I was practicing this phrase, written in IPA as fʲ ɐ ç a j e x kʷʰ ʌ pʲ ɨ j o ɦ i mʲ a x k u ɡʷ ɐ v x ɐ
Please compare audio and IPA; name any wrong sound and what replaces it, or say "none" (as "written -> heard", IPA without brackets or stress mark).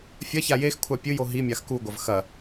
ʌ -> a